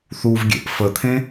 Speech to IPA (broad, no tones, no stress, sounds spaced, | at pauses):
θ u v ɡʲ ḛ ʔ f ə t̪ʰ ẽ